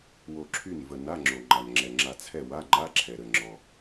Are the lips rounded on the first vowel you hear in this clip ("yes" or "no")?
yes